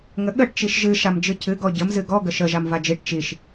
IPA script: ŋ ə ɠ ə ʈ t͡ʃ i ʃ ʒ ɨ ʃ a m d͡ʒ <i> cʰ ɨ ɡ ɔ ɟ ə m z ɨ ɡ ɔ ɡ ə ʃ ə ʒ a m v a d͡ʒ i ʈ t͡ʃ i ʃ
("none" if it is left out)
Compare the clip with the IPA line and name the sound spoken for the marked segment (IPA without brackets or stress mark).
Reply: ɨ